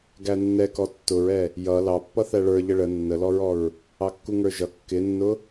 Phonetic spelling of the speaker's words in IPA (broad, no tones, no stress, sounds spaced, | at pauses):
ɡ æ nː ɛ k ɔ tː ʊ ɹ ɛ | j ʌ l ɑ pː ʌ θ æ ɭ ə˞ ʎ ə ɭ ə nː ə l ɔ ɹ ɔ ɹ | ɑ kː u ŋ ə˞ ʒ ʌ kː ɪ nː ʊ